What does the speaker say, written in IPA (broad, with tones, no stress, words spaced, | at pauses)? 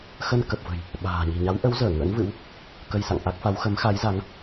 xə˧nkə˨˩p̚və̤˨˩j | ɓa̤ː˨˩ ɲi̤˨˩ɲa˨˦wʔə˨˦wzəː˧˩ ŋə̰˧˥nvɨ̰˧˥w | kə˧jsa̰˧˨ŋʔa˦˥k̚fa˨˦w xə˨˦mxa˨˦jza˨˦ŋ